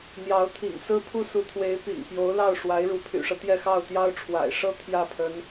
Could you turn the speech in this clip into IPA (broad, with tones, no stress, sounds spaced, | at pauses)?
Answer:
n̪ j ɑ˧˥ ʊ̯ t̪ʰ ḭ˨˩ ŋ s ɹ̩˥ pʰ u˥ s u˧˥ t̪ʰ w e˧˥ ɪ̯ p ḭ˨˩ ŋ p j o˧˥ ʊ̯ l ɑ˥˩ ʊ̯ ʂ w a˧˥ ɪ̯ ɻ u˧˥ pʰ y̰˨˩ ʂ ɤ˦ t̪ j ɛ˥˧ x ɑ˥˩ ʊ̯ t̪ j ɑ˥ ʊ̯ ʈ͡ʂʰ w a̰˨˩ ɪ̯ ʂ ɤ˥ t̪ʰ j ä˥˩ pʰ ə˧˥ n